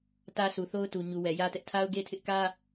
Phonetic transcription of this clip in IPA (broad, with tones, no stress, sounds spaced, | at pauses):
t ä˦ s u˨ θ o˦ ʊ̯ t u˨ ɲ u˨ w ɛ˨ j ä˦ t ɛ˦ ʔ tʰ a˦ ʊ̯ ɡ e˦ tʰ ɪ˦ ʔ k ä˦